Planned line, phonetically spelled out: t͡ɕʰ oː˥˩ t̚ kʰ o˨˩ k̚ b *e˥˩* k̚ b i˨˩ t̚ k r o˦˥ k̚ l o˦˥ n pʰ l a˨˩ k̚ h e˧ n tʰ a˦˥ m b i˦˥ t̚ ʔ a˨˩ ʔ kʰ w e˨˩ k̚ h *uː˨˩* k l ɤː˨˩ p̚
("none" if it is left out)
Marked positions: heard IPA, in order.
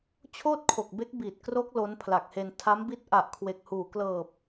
e˦˥, uː˨˩

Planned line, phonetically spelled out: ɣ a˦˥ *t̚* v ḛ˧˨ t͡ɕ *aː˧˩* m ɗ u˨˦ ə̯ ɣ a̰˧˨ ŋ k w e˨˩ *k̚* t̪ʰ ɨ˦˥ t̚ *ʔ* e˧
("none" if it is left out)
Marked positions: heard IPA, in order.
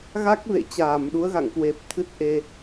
k̚, aː˧˩, p̚, ʔ

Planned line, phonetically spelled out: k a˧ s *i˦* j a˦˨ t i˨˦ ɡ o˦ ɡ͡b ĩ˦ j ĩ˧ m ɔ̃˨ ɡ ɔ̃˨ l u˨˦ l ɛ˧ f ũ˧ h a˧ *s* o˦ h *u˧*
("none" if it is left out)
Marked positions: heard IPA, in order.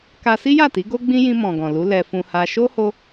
i˦, ʃ, o˧

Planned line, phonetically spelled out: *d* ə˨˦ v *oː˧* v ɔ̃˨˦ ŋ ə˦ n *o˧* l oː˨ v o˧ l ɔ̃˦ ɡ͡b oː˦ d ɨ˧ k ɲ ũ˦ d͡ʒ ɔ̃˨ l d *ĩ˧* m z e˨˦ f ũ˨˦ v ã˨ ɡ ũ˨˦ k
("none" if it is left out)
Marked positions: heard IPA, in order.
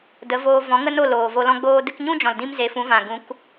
d, oː˧, o˦˨, ĩ˧

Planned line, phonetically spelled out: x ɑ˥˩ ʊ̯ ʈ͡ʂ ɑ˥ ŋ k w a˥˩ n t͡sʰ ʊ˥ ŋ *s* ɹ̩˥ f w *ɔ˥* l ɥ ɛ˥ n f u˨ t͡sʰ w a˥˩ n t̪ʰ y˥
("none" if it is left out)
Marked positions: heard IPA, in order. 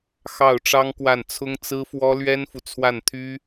t͡s, ɔ˥

